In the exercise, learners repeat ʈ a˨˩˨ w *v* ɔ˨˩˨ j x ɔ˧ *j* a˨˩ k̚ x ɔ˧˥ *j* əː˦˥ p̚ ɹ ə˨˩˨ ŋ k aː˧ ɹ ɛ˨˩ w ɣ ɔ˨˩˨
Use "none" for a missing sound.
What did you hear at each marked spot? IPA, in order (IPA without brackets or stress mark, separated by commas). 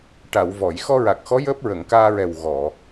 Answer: v, ɹ, j